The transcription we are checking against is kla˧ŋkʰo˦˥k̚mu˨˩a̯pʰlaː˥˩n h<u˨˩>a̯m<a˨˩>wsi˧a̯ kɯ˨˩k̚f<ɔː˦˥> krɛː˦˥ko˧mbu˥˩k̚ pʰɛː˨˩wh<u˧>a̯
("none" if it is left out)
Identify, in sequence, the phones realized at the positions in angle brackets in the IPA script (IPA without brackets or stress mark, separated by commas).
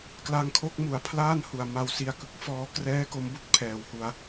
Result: u˨˩, a˧, ɔː˧, u˧